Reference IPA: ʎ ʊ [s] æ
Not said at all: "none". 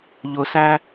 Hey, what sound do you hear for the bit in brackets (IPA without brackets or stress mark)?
s